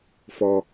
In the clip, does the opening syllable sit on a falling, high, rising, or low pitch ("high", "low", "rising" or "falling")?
high